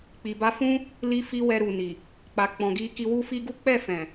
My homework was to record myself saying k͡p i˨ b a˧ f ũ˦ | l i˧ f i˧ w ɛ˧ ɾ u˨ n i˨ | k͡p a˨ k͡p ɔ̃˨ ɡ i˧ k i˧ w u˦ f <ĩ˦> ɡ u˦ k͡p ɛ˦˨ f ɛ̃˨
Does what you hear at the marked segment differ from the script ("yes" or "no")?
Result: yes